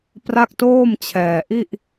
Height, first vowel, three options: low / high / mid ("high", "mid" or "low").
low